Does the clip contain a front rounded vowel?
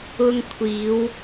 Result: no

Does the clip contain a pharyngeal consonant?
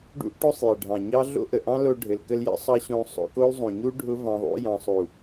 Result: no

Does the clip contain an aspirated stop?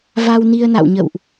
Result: no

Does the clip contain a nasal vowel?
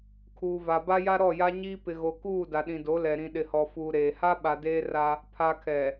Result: yes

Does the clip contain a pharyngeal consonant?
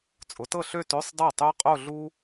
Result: no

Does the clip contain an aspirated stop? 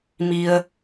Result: no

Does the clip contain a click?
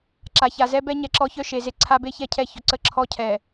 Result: yes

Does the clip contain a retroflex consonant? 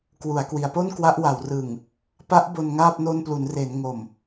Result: no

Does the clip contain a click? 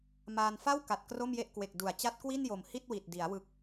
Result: no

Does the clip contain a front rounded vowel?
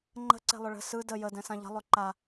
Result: yes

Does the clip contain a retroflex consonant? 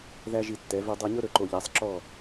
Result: no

